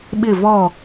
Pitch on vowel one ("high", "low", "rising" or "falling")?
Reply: falling